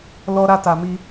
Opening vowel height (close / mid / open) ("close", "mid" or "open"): mid